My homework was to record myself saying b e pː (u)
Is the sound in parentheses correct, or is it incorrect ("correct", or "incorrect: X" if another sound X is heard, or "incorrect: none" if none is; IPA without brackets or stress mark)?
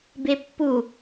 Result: correct